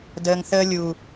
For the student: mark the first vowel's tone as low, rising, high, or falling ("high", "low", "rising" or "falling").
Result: low